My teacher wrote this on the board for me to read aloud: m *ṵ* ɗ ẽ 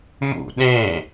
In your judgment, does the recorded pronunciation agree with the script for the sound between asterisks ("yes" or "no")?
yes